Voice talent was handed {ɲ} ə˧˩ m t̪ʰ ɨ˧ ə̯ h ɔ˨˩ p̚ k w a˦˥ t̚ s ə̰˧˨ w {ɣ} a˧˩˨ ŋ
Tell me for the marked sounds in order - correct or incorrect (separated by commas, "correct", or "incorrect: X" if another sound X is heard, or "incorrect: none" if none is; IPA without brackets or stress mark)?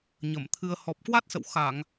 correct, incorrect: x